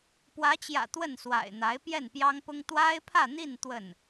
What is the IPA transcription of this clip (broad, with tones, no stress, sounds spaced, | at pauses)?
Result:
p w ä˧˥ t͡ɕ j ä̰˨˩ t̪ w ə˥˩ n s w a̰˨˩ ɪ̯ n̪ a˧˥ ɪ̯ p j ɛ˥˩ n p j ɑ˥ ŋ p ʊ˥ ŋ t̪ w a˥ ɪ̯ pʰ ä˥˧ n̪ i˥˧ n t̪ w ə˥˩ n